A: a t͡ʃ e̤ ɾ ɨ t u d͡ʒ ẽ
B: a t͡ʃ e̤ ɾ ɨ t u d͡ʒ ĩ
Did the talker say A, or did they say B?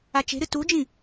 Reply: B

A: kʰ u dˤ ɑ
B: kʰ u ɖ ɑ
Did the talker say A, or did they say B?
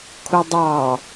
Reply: A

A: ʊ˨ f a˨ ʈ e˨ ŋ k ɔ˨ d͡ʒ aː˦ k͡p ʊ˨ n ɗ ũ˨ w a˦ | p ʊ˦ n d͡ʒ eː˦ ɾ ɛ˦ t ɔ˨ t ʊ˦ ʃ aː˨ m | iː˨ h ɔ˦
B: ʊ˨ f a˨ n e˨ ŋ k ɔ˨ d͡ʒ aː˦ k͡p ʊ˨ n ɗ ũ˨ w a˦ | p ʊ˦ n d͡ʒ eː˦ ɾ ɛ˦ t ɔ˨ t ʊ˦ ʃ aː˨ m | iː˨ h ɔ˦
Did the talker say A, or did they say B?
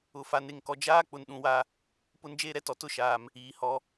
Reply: B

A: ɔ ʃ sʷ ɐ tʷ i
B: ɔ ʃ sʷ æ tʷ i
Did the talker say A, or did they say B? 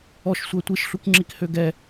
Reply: B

